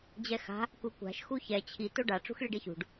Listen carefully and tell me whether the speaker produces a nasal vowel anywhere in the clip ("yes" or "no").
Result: no